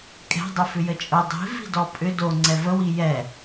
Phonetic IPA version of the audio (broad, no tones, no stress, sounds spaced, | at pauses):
kʼ ɛ̤ dˤ ʊ f ʏ j ə t͡ʃʼ ʊ dˤ i̤ v i̤ d ɔ pʼ ʏ d o ŋ͡ǀ ɛ v ə w i j ɛ